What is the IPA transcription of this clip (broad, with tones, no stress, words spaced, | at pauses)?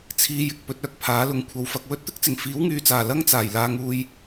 t͡sʰiː˧jɪ˨k̚ pɵ˨˥t̚œː˧k̚pʰaː˨˥lʊ˨˥ŋ kʷʰɐ˨˥wfɐ˨˥k̚ wɵ˨˥t̚t̪ɪ˥k̚t͡sɪ˨˩ŋ fiː˨˥wŋyː˨t͡saː˨˩ lɐ˥ŋt͡saː˨˩j laː˧ŋuː˧j